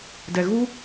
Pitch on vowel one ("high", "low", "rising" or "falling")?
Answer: low